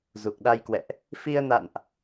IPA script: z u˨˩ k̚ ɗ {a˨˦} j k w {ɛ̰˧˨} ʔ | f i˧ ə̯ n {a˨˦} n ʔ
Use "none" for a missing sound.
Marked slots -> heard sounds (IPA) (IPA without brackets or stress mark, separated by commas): a˧, ɛ̰˧˨, a̰˧˨